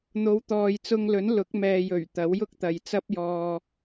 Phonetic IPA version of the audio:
n̪o˨˧wt̪ɔː˨jt͡sʊ˧ŋlɵ˨˥n lʊ˨˥k̚mɛː˨jɵ˨˩ɥ t̪ɐ˨˥wjʊ˥k̚t̪ɐ˨jt͡sɐ˥p̚ jɔː˧

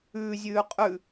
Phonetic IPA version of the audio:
ʉːzʲʉː qʼʉ

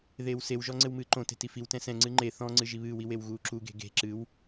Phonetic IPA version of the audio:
ðeːwsewʒɔ ŋ͡ǀɘwmɨːǃõte̤ tifiwtɛ̃ sɛ̃ŋ͡ǀɨ ŋ͡ǃe θɔ̃ŋ͡ǀɨ ʒiβɨːwi wewɣuːǁuɡe̤ ɡe̤ ǁɨw

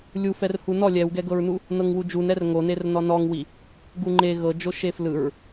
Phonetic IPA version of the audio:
lʲu fɛrhunɔ lʲɛwɡɛɡɤɹnu | nɤŋwud͡ʒun ɛrŋo nernɔnɔŋwi | ɡuŋ͡ǃe ɣɤd͡ʒo ʃeflɯɹ

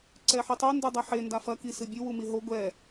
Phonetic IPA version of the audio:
ǀɛħitˤu ndɨdˤɐħe ndafɐ kisɨbʲɨ wumiɦo ɡʷɛ

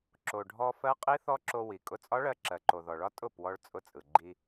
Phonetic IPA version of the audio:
ǁo˩ɖʱɔ˧ fɜ˦˥qʼi˦˥θɔ˦˥ǁo˧ wi˩ kʼʊ˧t͡sʼɒ˦˥ɭɜ˧ ǁɜ˩ǃo˩ðɔ˩ɭɒ˦˥ tʼʊ˥˩pwɔ˧ɭ t͡sʼʊ˧t͡sʼɯ˩ɡ͡ǃi˧

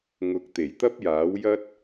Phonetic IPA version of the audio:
ŋʊ˨˥k̚t̪e˨˩jt̪ɐ˥p̚jaː˨˥w jɐ˥t̚

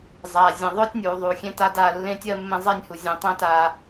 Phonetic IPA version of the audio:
zˤaː˨ zʲẽ˨ðˤʊː˦tʲnʲuː˨ðˤu˨ xʲẽ˦ta˦da˦˨ lːẽ˦tʲɜ˦mːẽ˦ zˤe˦nʲhu˨ zʲẽ˨tˤẽ˦ ta˦

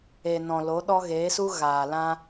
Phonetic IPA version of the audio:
e˨nɔ̃˨ lo˨˦ɗɔ˦ ɣe˨˦su˦ɣaː˨ lã˦

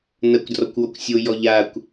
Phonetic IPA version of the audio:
nɐkʷdrɔkʷwɔkʷ sʲojɔ ʎakʷ

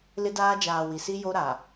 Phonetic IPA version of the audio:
lɪ˦daː˦ d͡ʒaː˨ wi˨si˦ jo˦ɾa˨

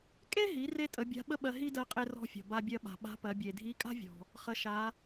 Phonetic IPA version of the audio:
kʼe˥ɦi˩˧re˧ tʼə˩˧bʲa̤˧˥ɓə˥ɓɜ˧ ɦi˥ dɜ˧qʼe˧ rɔ̤˧ fʲɔ̤˩ba˧bʲɜ˧ɓa̤˩ ɓa̤˧˥pɜ˩˧bʲe˩ dʱi˧˥kʼa̤˥vʲɔ̤˩ | χə˩˧ʃa˩˧

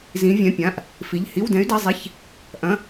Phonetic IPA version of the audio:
zĩ˧˥vʲɛ̃˧˥˧pʲã˧˥˧ʔ | fi˧˥˧ʎ hi˧˥˧wdɛ̃˧˥y̯dɐ˧˥˧zˤi˧˥˧ç | ʔɐ̃˧˥˧

